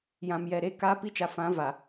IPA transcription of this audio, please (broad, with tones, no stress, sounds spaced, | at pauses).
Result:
j ã˨ m j ɛ˨ ɾ e˦ k a˦ p i˦ t͡ʃ a˨ f ã˨˦ v a˨